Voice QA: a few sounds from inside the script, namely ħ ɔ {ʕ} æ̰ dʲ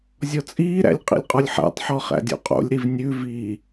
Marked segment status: incorrect: χ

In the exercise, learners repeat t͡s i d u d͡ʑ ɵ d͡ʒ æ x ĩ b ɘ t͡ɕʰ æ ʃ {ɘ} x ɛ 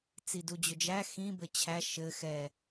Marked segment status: correct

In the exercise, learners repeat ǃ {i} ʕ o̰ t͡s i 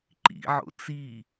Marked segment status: incorrect: ḭ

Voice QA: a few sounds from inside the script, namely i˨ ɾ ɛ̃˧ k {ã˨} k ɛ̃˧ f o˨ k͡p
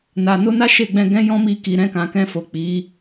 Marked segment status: correct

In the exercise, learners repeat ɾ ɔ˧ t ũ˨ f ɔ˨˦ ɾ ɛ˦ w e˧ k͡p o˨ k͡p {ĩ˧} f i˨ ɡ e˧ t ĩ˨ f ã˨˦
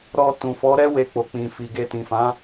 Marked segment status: incorrect: ĩ˨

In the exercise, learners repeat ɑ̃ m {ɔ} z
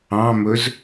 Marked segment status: incorrect: ɵ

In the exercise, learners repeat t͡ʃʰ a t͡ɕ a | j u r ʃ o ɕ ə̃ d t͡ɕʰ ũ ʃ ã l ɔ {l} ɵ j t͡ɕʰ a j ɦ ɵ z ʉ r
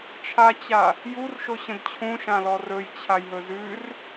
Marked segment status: incorrect: r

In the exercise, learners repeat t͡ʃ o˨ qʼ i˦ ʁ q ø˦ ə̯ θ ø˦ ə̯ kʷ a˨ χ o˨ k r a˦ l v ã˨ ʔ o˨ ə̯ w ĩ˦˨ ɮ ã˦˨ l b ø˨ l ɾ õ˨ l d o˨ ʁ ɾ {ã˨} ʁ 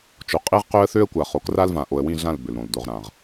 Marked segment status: correct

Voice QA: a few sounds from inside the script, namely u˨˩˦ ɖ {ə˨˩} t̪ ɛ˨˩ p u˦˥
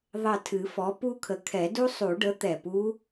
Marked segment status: incorrect: ə˩˥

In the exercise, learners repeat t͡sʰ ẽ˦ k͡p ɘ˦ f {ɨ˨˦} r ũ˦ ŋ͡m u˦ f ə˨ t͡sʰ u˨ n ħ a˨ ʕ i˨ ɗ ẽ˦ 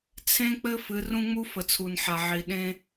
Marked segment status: correct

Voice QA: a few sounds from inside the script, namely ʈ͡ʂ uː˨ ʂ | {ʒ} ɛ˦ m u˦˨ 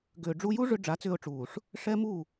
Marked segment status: incorrect: ʂ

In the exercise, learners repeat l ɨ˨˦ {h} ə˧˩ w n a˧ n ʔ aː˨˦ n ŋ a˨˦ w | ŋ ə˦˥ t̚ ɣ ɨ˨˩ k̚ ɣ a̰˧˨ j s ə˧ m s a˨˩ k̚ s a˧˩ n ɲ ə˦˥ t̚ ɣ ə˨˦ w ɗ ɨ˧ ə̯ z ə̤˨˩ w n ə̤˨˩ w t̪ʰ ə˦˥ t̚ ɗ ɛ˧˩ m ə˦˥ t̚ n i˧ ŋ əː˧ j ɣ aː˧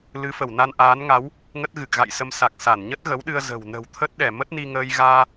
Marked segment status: incorrect: f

